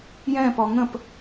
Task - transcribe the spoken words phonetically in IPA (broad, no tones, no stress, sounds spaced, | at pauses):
j ɛ̃ p ɔ ŋ ə̃ p